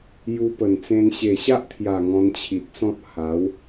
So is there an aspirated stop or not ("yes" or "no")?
yes